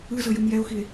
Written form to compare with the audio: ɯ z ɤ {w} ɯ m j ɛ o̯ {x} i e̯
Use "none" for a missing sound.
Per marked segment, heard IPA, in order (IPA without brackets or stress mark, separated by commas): j, x